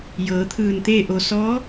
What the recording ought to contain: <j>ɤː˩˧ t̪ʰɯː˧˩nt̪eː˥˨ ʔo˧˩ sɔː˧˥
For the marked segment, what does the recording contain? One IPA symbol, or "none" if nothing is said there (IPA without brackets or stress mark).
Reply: j